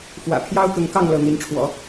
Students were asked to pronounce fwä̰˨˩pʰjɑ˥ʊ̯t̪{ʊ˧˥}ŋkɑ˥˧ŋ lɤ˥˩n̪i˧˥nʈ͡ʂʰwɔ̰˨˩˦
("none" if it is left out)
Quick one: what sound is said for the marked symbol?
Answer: ʊ˧˥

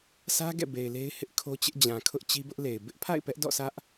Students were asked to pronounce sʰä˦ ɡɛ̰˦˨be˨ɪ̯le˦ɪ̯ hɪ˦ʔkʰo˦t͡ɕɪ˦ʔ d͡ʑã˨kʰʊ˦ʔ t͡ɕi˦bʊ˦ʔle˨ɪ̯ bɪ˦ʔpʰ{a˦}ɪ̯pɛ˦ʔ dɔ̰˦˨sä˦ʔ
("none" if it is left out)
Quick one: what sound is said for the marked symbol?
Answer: a̰˦˨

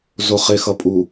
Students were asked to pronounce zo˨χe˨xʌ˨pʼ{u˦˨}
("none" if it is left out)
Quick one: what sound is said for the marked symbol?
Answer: u˨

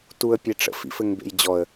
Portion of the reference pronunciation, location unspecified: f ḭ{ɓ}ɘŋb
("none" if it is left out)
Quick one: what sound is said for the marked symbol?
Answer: f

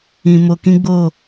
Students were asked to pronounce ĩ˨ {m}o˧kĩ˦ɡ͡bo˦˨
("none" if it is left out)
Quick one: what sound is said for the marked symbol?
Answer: m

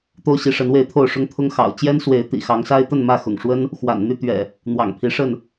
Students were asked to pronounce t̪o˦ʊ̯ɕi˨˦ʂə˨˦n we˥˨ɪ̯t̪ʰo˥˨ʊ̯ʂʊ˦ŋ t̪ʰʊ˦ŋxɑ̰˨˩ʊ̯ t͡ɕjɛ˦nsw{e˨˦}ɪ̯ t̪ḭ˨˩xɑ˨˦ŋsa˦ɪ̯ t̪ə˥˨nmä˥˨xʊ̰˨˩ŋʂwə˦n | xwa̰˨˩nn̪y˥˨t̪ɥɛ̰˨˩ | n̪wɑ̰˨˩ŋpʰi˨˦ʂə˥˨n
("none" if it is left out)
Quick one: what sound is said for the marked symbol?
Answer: e˨˦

